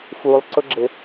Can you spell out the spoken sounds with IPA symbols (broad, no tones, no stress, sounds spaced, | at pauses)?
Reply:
f u lˠ ǀ ʊ ɡ͡ǁ ɪ